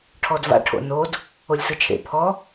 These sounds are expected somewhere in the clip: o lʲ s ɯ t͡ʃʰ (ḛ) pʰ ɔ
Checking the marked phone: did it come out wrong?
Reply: no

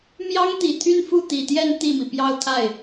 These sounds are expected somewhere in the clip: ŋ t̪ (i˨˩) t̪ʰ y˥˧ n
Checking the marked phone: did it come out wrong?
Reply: no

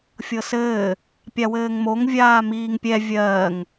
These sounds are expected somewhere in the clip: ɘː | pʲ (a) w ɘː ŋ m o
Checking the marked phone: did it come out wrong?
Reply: no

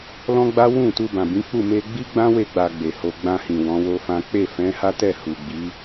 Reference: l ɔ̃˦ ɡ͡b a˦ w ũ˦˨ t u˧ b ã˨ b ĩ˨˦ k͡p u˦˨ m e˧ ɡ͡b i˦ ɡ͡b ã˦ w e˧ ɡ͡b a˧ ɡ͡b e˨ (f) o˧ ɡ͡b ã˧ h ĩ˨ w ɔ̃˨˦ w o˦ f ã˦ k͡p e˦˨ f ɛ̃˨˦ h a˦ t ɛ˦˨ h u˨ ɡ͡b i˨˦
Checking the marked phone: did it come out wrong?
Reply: yes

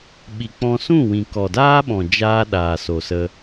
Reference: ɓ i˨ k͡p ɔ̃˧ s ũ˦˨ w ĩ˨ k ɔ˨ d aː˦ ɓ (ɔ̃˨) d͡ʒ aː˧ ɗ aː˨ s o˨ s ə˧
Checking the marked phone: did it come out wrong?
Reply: no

